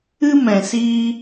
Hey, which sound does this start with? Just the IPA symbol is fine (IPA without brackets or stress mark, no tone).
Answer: ɨ